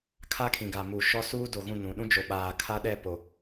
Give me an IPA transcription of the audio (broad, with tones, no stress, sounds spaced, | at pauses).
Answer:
kʰ a˦ kʰ ĩ˨ ɡ a˨ m u˨ ʃ ɔ˦ s uː˦ d o˨ ɣ ũ˦˨ n ũ˨ ɗ ũ˦ d͡ʒ o˨ ɓ aː˨ kʰ a˦ ɗ ɛ˦˨ p o˨